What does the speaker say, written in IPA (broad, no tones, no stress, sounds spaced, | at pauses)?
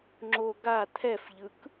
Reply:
ŋ͡ǁ o ɡ a t̪ʰ ɛ f ʎ ɯ k